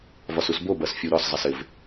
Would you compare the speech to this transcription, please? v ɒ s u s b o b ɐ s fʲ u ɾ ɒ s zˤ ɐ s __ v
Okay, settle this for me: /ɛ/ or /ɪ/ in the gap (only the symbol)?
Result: ɪ